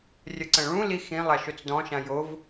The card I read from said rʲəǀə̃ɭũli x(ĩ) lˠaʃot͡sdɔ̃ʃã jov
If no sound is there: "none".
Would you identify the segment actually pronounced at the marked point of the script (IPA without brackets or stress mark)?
ĩ